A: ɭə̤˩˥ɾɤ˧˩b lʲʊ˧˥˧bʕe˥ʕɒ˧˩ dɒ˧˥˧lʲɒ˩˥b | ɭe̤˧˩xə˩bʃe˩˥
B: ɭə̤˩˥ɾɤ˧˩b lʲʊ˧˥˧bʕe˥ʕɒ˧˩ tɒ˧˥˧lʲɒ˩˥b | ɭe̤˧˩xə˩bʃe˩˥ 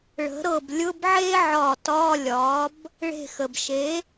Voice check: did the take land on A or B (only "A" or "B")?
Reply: B